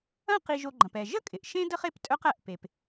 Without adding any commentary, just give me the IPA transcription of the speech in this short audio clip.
ɐ̃˦ q i˨ ʒ o˨ ɡ͡ǃ ɐ̃˩ p ɛ˩ ʒ ə˥ kʼ ɪ˩ ʔ ʃ ẽ˥ d ə˦ χ e˦ p tʼ œ˥ q æ˨ ʔ p e˩ p

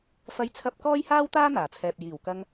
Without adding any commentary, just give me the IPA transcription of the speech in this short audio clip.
f ɐ˥ j t͡sʰ ɐ˥ p̚ k ɔː˥ j h aː˥ w t̪ aː˥ n̪ aː˨˩ t͡sʰ ɛː˨ p̚ j iː˨˩ w k ɐ˧ ŋ

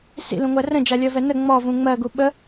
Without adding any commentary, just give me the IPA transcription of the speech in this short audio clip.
s ḭ l ũ ŋʷ ɜ r ə̃ d͡ʒ a lʲ ɜ v ɛ n ə ŋ͡m ɔ v ũ ŋ͡m ɜ ɡ u ɓ ə

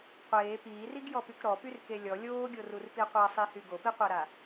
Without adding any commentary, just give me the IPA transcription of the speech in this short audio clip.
qʷ eː p iː r i ɡ j ɔ p y k ɾ ɔ p y r k e lʲ ɔ lʲ oː ɡʲ o r u r p i qʷ a sˤ i h y ɡ o p i qʷ a ɾ a

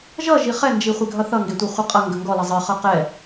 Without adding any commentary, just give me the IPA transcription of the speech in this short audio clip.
ʒ ʌ ʒ i χ ɛ n d͡ʒ i χʷ ɛ ɡʱ ʌ θ ʌ ŋ ɡ e tʷ ɛ χʷ ə qʼ ʌ ŋ ɡ ə ŋ ɡ ɔ l ʌ zˤ ɨ χ ʌ q ɛ

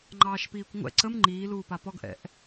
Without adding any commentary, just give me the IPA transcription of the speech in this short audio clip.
ŋ͡ǃ ɑː ʃ p iː kʷ ŋʷ ɛ̰ ǀ ə m ŋ͡ǃ iː l uː p a p ɔ ɡ ʔ ɛ̰ ʔ

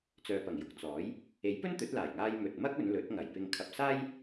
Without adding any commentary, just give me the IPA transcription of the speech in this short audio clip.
t͡s œː˨ p ɐ˨˩ ŋ j ʊ˨ k̚ t͡s ɔː˨˥ j | e˨˥ j p ɵ˥ n t̪ ɵ˨˥ t̚ l aː˨˩ j ŋ aː˧ j m ɵ˨ t̚ m ɐ˥ k̚ ɵ˨˧ n l ɵ˨˥ t̚ ŋ ɐ˨˩ j p ɪ˨ ŋ kʰ ɐ˨ p̚ s aː˥ j

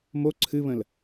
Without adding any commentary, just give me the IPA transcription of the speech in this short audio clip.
m o ǀʰ ɨ β ə̃ l

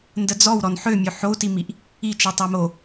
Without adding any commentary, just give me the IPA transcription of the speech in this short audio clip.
n d ə d͡z ɔ w ɾ ɔ n ħ ø mʲ ø ħ o u̯ t i m i ʔ | i t͡ʃ i tˤ e m o

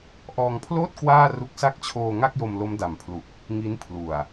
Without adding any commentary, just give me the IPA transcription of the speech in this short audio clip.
ʔ ɔː˧ ŋ pʰ l oː˥˩ t̚ k w aː˥˩ r u˦˥ k̚ s a˦˥ k̚ t͡ɕʰ oː˧ ŋ a˥˩ k̚ j o˧ m l o˦˥ m d a˨˩ m pʰ l u˨˩ k̚ | ŋ i˦˥ n pʰ l u˨˩ a̯

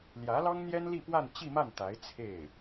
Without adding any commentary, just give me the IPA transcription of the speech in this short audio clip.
l j ä˧˥ l ɑ˥ ŋ n̪ j ɛ˥ n l i˥˧ p w a˥˧ n t͡ɕ i˥˧ m a˥˩ n t̪ a˧˥ ɪ̯ t͡sʰ e˥˩ ɪ̯

